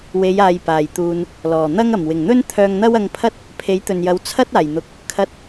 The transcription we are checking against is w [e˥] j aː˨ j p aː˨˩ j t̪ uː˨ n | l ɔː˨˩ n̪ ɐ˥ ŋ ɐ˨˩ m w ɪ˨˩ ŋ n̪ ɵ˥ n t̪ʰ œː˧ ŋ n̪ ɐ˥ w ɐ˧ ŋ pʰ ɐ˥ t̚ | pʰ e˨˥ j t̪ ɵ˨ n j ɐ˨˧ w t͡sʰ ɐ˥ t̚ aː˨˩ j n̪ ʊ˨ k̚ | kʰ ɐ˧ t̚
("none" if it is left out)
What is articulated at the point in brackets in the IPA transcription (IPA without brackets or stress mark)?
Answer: e˨˧